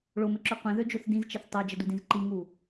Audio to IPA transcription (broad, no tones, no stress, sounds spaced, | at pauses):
ɭ o m ɘ ǁ ø qʷ ẽ ð ø d͡ʒ o θ d ĩ z t͡ʃ ɘ θ tˤ ə ʊ̯ d͡ʒ ə d u d ĩ z ǃ i ŋ u